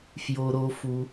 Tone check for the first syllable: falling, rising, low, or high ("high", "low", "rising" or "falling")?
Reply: high